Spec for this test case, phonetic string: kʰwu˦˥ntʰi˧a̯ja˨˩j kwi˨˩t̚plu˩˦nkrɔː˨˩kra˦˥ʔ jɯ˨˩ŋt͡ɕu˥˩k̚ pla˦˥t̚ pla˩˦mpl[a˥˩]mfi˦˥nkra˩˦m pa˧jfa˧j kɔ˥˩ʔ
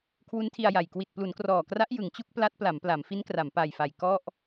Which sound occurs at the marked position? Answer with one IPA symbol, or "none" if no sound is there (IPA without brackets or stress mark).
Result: a˩˦